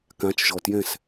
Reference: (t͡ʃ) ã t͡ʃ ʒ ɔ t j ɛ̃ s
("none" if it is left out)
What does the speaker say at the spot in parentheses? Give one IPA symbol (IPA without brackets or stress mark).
k